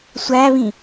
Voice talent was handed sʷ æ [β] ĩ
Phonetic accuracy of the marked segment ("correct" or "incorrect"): correct